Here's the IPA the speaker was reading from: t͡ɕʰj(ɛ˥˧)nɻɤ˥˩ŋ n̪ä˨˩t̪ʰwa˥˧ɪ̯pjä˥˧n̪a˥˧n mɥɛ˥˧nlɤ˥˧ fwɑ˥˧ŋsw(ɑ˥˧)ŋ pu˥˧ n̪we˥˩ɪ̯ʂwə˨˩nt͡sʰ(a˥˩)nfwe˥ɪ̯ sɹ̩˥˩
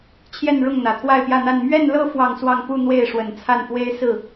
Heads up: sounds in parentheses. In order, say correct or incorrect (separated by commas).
correct, correct, correct